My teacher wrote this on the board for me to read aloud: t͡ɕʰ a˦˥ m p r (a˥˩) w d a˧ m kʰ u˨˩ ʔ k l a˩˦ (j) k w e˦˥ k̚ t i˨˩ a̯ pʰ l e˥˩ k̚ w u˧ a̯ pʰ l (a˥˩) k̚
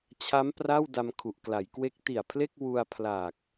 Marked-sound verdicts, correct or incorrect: correct, correct, incorrect: a˨˩

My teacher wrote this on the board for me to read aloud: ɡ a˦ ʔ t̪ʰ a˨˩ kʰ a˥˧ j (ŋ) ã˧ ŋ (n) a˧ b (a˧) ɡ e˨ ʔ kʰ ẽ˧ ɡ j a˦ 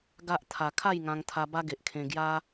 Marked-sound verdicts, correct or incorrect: correct, incorrect: t̪ʰ, incorrect: a˦

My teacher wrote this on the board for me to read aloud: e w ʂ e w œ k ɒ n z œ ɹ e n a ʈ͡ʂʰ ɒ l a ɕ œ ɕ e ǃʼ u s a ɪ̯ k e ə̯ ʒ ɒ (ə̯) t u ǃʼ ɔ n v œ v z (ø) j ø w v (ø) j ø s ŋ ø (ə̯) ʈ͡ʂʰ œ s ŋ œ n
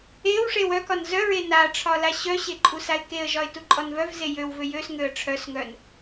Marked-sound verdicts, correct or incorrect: incorrect: ɪ̯, incorrect: e, correct, correct

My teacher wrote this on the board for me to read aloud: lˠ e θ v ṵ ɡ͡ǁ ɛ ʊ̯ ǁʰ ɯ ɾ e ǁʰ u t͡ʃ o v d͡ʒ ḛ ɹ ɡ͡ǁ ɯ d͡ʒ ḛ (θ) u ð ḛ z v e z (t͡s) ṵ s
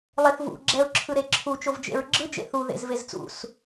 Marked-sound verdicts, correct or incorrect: correct, correct

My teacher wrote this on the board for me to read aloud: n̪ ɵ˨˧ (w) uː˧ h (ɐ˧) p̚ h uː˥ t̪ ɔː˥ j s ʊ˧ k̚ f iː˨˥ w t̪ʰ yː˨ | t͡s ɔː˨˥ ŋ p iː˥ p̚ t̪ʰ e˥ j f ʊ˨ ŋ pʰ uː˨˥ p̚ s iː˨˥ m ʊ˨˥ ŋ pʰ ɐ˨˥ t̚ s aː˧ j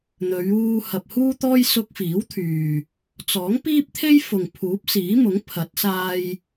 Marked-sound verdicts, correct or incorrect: incorrect: ɥ, incorrect: ɐ˨

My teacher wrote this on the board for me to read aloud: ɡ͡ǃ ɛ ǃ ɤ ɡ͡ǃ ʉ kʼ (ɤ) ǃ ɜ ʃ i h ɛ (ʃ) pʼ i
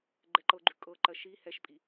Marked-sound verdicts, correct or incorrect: correct, correct

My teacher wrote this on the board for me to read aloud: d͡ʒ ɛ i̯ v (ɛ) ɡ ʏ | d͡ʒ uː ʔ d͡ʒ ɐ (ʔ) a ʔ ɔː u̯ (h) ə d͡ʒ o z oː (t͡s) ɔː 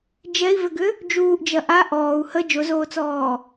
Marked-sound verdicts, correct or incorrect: incorrect: ʏ, correct, correct, correct

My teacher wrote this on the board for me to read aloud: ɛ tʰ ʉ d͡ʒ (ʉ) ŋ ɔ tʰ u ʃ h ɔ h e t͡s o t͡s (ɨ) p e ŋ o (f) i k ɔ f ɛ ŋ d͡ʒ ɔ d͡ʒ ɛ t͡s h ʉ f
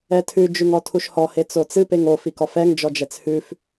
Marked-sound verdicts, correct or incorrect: correct, correct, correct

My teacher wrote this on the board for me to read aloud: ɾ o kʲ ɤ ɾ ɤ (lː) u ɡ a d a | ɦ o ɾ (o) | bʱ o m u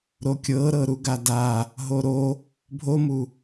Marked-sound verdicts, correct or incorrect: incorrect: ɾ, correct

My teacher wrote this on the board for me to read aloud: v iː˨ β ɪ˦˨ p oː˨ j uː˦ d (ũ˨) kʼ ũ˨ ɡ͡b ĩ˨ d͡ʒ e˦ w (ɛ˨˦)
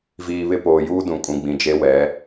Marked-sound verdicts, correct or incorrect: correct, correct

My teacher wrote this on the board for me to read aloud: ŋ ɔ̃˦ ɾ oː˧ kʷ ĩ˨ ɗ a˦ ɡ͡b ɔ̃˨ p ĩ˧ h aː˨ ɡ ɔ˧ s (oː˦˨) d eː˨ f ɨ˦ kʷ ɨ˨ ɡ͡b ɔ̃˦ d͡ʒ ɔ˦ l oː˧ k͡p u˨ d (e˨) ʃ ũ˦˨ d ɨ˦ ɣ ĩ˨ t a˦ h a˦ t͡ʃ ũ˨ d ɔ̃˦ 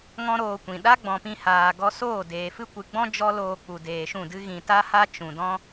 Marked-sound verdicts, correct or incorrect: correct, incorrect: eː˨

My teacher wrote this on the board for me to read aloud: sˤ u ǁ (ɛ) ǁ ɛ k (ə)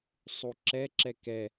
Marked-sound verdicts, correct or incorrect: correct, incorrect: ɛ

